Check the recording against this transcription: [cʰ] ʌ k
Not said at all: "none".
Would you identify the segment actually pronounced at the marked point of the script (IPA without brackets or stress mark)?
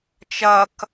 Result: t͡ʃ